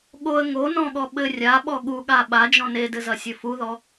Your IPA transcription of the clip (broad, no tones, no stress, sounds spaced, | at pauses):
ɠ o ə̯ ŋ o n ɔ̃ ɠ ɔ ɓ ɘ rʲ a ɓ ɔ ɠ u ɠ a ɓ a d͡ʒ ɔ̃ n e d ɘ z ɐ sʲ ɘ f u ð ɔ